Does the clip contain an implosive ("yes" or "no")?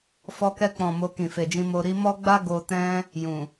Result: no